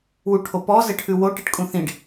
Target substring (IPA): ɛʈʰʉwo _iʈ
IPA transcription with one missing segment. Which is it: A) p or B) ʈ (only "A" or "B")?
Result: B